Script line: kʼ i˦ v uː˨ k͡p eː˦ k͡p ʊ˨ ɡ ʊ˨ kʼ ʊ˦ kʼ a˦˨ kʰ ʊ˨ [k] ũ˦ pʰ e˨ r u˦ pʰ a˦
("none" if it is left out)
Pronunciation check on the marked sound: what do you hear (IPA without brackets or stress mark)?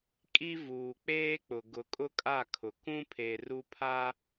k